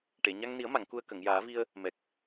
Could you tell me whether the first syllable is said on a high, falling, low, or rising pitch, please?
low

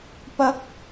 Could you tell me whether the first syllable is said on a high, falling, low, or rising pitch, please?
rising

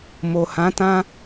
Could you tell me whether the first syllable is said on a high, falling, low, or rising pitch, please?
low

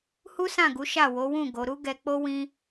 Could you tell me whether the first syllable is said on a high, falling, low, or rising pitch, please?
high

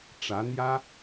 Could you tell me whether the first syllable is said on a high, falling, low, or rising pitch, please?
rising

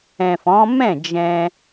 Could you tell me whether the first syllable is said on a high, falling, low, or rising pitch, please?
low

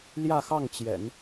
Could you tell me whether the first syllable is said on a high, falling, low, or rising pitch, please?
falling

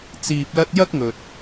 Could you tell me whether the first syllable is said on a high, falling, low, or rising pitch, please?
low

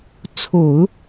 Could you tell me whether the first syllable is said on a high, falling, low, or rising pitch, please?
low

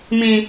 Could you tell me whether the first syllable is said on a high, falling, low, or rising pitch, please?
low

